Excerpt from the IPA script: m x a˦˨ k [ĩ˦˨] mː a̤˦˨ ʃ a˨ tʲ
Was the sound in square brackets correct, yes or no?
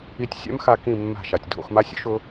yes